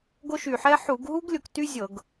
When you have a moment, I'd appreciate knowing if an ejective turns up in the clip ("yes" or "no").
no